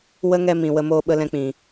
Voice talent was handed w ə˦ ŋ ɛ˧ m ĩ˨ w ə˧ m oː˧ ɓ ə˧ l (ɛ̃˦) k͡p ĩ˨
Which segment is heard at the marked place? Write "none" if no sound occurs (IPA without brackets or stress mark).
ɛ̃˧